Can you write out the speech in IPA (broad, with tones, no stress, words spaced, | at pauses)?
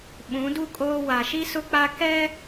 ɓũ˨˦du˦ kʼoː˦ wa˨ʃi˦sʊ˦k͡pa˦ kɛ˦